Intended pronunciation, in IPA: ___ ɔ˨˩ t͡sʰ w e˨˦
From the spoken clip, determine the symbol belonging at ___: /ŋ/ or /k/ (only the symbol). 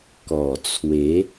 k